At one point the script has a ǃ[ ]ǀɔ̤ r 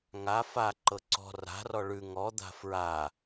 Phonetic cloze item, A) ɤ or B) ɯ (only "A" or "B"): A